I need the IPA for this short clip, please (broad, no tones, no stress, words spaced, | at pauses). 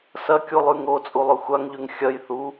sɐkʲulˠʉ ŋot͡sʼu lˠɵxʷaŋʎʉŋ xʲɐj θu